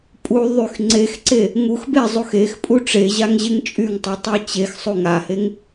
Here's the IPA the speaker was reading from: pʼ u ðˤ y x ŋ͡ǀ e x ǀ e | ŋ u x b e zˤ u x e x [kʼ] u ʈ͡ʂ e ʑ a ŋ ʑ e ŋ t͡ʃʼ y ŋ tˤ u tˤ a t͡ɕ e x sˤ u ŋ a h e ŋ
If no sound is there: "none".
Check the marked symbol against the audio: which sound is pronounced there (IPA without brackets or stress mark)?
pʼ